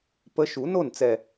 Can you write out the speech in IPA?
pə˧˥ ʃu˨˩˦no˥˩nt͡sɛ˨˩

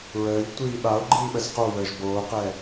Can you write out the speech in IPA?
ɹəːʎtʷiː ɓao̯ ɡ͡ǃiːɓəzqowəːʒ boːqɛ

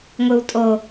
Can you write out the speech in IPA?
ŋʷɯwtʼo

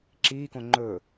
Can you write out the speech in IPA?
ǁiːkõ ŋ͡ǃɵ

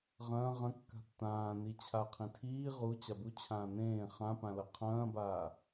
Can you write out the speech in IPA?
ʁɐ̃ː ʁɐ̃ kːa̤tːãː nit͡ɕʰa qʰĩtʰiː ʁu t͡ɕabu t͡ɕʰãːnẽː χãpãlɐ qʰɐ̃ːbaː

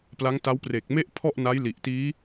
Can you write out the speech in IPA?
pla˦˥ŋta˦˥w pre˨˩k̚me˥˩ʔ pʰɔ˥˩ʔna˦˥jli˨˩ʔtiː˦˥

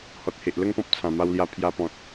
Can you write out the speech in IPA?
hɔ˨t̚he˨ʔlə˥˧ŋpɔ̃˦p̚ t͡sʰã˨˩ma˧wlja˧ pʰja˧pɔ̃˨t̚

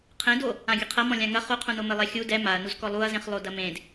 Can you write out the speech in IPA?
qʰẽdo | ãɡʲɘqʰɐm ɔ̃lʲãŋɐ χuqʰũnomɘ lˠɛxʲu dɛ maɐ̯nuz kɔlˠuɐ̯zẽχ lˠodɐmẽd

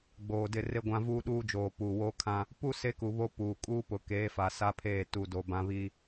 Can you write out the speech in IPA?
ɡ͡boː˨ dɪ˦˨re˦ɡʷã˦vuː˦ ɗuː˦d͡ʒoː˨ puː˨woː˦kʰã˦ | pu˦ se˦ku˨βo˦ puː˨ kʼuː˦pʊ˨keː˨˦fa˨ sa˦pʰeː˦˨ tu˨do˨ bã˦βi˦

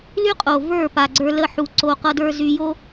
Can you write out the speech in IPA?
ly˦qʼo˨ və˞˦˨ pa˨ɡ͡ǀə˞˧lə˦˨ ħu˧ǀo˧qʌ˦də˞˦ zy˧jo˦

